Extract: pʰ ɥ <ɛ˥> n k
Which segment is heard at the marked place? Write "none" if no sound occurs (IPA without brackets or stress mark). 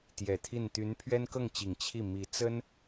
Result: ɛ˥